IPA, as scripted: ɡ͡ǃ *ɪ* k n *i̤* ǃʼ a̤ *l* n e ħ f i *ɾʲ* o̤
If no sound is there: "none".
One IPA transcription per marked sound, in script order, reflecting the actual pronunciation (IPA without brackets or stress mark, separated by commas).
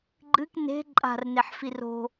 ɨ, e̤, r, r